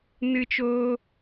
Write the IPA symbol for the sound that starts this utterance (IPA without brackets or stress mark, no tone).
n